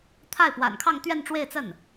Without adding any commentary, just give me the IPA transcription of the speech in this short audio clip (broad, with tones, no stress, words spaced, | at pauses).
t̪ʰa˥˩ɪ̯pwa̰˨˩nkʰɑ˥˧ŋ t̪ɥɛ˥˧nʈ͡ʂwe˥˧ɪ̯t͡sə˥˩n